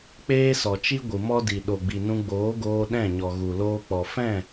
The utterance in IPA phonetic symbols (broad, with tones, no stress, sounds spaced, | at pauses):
k͡p eː˦ s ɔ˨ t͡ʃ i˦ ɡʷ ɨ˨ m ɔ˦ d i˨ ɗ o˨ ɡ͡b i˨ n ũ˧ ɡ͡b oː˨˦ ɡ oː˧ ɗ ɛ̃˦˨ ɲ ɔ˨ ɣ u˨ l oː˧ k͡p ɔ˨ f ɛ̃˦˨